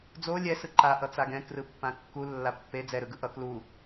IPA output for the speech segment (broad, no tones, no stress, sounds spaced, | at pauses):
d͡z o lʲ ɛ s ɯ ǃ a ʔ ʌ t͡s a ɡ ɛ̃ k r ɯ pː ã kː u lː a pː e d͡z ɛ ɾ ɯ ɡ ɯ ʔ ʌ k l u